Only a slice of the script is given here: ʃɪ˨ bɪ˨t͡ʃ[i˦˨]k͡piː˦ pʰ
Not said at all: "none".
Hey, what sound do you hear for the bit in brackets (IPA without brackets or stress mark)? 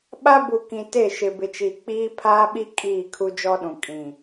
i˨